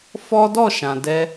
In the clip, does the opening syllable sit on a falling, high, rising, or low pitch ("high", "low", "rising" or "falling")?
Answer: high